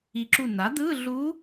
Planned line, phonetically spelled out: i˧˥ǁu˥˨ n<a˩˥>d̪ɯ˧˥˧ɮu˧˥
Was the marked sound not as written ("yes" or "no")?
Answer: no